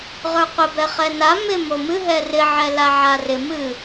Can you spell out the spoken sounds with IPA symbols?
ʁ ə˞ qʷ ɪ b ɛ χ ɛ n a m ɪ m o m ɨ ɦ ɛ r ɪ ʕ ɛ l a ʕ a r ɪ m ɨ

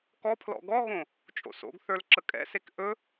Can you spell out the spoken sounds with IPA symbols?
k ɔ pʰ l ɔ̰ ɡ ɔ ɣ õ | t͡ʃʼ o̰ s o̰ ɡ θ ə˞ l ǁ ə kʼ ɛ̰ s e k ʔ ɵ

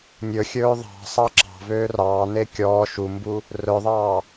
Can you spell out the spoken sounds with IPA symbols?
nʲ ɵ xʲ ɵː ðˤ ɑ̤ sˤ ɑ ǁ ɑ̤ v øː r ɑː n e kʲ ɔː ʃ u m b u | r œ ðˤ ɑː

